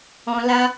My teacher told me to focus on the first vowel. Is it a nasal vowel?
yes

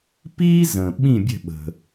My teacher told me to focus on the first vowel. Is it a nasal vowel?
no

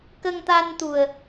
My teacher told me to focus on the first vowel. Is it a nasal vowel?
no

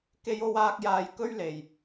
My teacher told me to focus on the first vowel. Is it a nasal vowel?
no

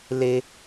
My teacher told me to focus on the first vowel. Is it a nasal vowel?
no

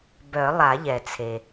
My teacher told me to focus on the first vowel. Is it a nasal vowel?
no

